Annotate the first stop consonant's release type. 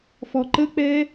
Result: click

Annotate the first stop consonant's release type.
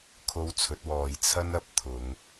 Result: aspirated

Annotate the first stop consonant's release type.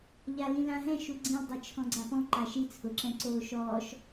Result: click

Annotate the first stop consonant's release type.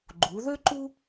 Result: click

